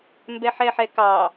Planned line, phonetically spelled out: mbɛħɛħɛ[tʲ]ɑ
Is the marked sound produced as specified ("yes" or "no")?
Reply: no